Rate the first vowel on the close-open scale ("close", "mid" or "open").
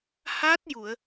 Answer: open